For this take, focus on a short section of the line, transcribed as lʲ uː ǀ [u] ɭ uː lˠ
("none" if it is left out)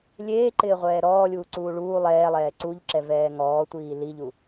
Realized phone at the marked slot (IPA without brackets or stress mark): uː